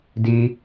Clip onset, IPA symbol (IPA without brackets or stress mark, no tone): d